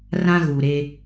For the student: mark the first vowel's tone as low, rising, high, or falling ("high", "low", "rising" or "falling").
high